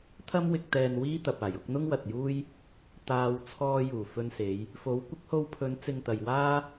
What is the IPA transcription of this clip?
t̪ʰɐ˥mwɪ˧k̚ t̪ɛː˧n wiː˥t̪ɐ˨p̚aː˨˩j ʊ˨˥k̚n̪ʊ˥ŋwɐ˨t̚juː˥j | t̪aː˧w t͡sʰɔː˧juː˨˩ fɵ˧nse˨˧j | fo˨˥w kʷɪ˨˥k̚ho˧wpʰɵ˨˧n t͡sɪ˧ŋt̪ɐ˨jwaː˥

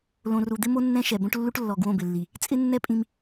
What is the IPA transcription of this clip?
lõ˨ru˨d̪ɪ˦mo˦ nːɛ̃˦ʃɛ˨bõ˦ʈ lːu˦ʈlːɔ˨ ɡwõ˦˨bɪ˨lːi˨ | t͡sʼɪ˦nːɛ˦ pʼĩ˦m

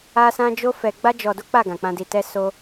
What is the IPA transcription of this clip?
a˦sã˦ d͡ʒo˦fɛ˧ ɡ͡ba˦ d͡ʒɔ˧do˦k͡pa˦˨ ɡã˨k͡pã˧di˧tɛ˦ so˦

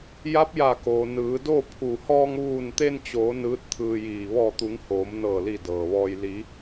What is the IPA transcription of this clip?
ja˧˥p̚ja˧˩koː˩ nɯː˩˧do˥˨pʰu˧˩ hɔː˧ŋʋuː˧˩nt̪e˧nt͡ɕoː˩˧ nɯː˧˥t̚t̪ʰɯː˧jiː˧˩ ʋɔː˧˩t̪u˩˧ŋ hoː˩˧mnɤː˧˩li˧˩ dɤː˩ʋɔː˧j li˩˧

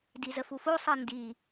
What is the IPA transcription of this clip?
dizəfufo sˤindi

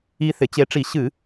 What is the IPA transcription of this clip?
i˨˥θɪ˩˧t͡ɕe˨˥ʈ͡ʂi˧˩˧ ɕɨ˧˩˧

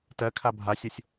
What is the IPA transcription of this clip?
tɜkʰa bʱasʲosʲ

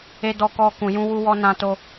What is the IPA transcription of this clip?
e˧dɔ˧kɔ˧ kũ˨jũ˧wu˧wɔ˧ nã˧to˧

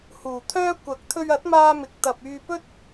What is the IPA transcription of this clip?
huː˨˩t̪ʰœː˥ kʷɐ˨˥k̚t̪ʰɵ˧ɥɐ˨˥t̚maː˧ mɪ˨k̚t̪ɐ˨p̚ yː˧pɵ˥t̚

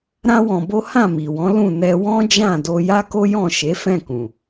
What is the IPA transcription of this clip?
ɾã˦wɔ̃˧bo˦ hã˦˨mi˨wɔ̃˨˦ lũ˦˨ nɛ˧wɔ̃˦d͡ʒã˦˨ do˧ja˦ko˦ jɔ̃˦˨ ʃe˨˦fɛ̃˦˨kũ˨

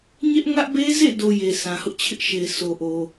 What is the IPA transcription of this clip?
ɲɛ˦ʔ ŋä˦ʔ be˦zḛ˦˨do˨ je˨sʰã˨hʊ˦ʔt͡ɕʰɪ˦ʔ ʃe˨ɪ̯ so˨ʔo˨

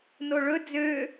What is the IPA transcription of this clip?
noɭɵ d͡zø

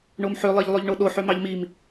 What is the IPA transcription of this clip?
ɳomħø lˠeʎlˠøʎɳoɗo ħømɑʎmim

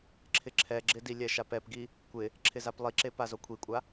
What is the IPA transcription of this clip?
ǁʰɪǁʰɛɡ͡ǁɪdi lʲɛʃapɛpɡi | kʷɪ | ǁʰɪzaplˠiǁe pazokʷʰikʷʼa

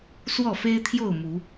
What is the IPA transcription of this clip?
swɔ˥˨fe˦ɪ̯t̪ʰjo˥˨ʊ̯ mu˨˦

